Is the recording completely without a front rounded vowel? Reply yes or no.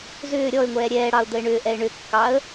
no